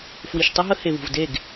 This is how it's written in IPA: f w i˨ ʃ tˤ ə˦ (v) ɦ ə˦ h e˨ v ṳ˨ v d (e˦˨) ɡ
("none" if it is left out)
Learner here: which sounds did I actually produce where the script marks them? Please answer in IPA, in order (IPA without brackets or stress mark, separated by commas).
none, e˦˨